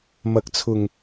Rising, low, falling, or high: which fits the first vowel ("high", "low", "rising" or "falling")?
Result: rising